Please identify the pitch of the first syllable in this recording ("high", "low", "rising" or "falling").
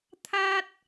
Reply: high